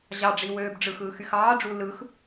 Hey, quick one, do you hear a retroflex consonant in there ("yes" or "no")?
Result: yes